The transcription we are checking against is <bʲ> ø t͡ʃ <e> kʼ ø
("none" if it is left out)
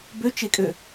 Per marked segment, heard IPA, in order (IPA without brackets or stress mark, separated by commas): b, e